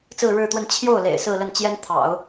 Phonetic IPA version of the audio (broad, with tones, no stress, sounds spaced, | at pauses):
t͡s ɹ̩˥˧ ɻ ɻ̩˥˧ t̪ w ə˥˧ n t͡ɕʰ j o˥˩ ʊ̯ l ḛ˨˩ ɪ̯ s ɹ̩˥˧ l ə˥˩ n t͡ɕ j ɛ˥ n t̪ʰ ɑ̰˨˩˦ ʊ̯